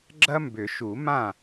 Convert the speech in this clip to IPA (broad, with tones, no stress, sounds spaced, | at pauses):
ɡ͡ǁ ɐ˥ m b ʏ˨˩˦ ʃ u˨˩˦ m ã˥˩